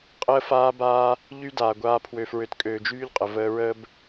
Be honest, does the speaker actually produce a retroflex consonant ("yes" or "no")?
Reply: no